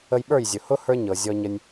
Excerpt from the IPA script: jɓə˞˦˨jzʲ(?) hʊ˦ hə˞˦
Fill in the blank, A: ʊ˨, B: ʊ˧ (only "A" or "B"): A